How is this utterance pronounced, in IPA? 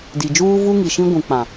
di˨ d͡ʒuː˦vu˦ŋi˨ʃĩ˦ ɡʷũ˨k͡pã˨

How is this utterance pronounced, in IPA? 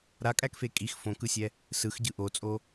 ɾakʼækfe kʼix fõkɯsʲɛ | sɯxɟɯ ʔot͡sʼo

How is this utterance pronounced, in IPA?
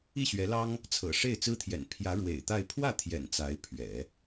i˥˩ɕɥɛ˧˥lɑ˥ŋ | t͡sʰɤ̰˨˩ ʂe˥˩ɪ̯t͡sɹ̩˥t̪ʰjɛ̰˨˩n pʰjä˧˥ ɻwḛ˨˩ɪ̯t̪a˥˧ɪ̯ pʰwä˥˩t̪ʰjɛ̰˨˩n t͡sa˧˥ɪ̯pʰɥɛ̰˨˩˦

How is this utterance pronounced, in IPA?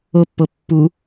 opːo pːu

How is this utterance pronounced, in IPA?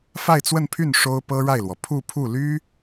fa˥˧ɪ̯t͡swə˥˧npʰy˥˩n ʂo˥ʊ̯pɤ˥ɻa˥˩ɪ̯lwɔ˩ pʰu˥˧ pʰu˥˩ly˥

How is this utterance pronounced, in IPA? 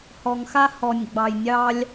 hɔ˨ŋxa˦ hɔ˨nʲɡ͡bɑ˨j nʲɑ˦lʲ

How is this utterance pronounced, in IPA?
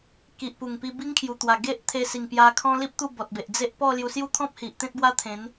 ki˨ʔpu˨˩ŋpi˧ bi˦ŋkʰju˨˩t̪wa˨˩ ɡe˦ʔt̪ʰe˧ si˨˩ŋpja˧kʰɔ̃˦li˦p̚ t̪u˥˧bɔ˨t̚be˨ʔ d͡ze˦ʔ pɔ˥˧lju˧ sju˦t̪ʰɔ̃˦p̚hi˨ʔ t̪ẽ˦t̚bwa˦t̪ʰẽ˨˦n

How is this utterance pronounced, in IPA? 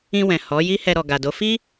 ĩ˧wɛ̃˨ hɔ˨˦ ji˦hɛ˧ɾɔ˨ɡa˨ do˨˦fi˦

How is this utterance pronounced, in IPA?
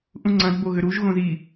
ʔũŋ͡ǀɐ̃d boɣʏɾuʒ ɣõzi

